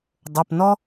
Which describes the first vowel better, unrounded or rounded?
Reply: rounded